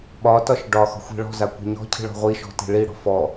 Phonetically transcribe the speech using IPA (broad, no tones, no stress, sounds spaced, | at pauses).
ɓ ɒ t ɒ ʃ ɖ ɒ x ɔ̤ xʷ i̤ ɭ ɔ̤ z a kʷ i̤ ɲ ɔ̤ cʰ i̤ ɭ ɔ̤ ʁʷ i ʃ ɔ̤ t i̤ ɭ i ɽ ɔ̤ f ɔ